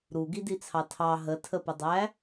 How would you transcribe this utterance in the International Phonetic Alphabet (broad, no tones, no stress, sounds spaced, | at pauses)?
ɾ u ɡ i d i t͡sʰ ɑ tʰ ɑ ɦ ə tʰ ə p ə dˤ æ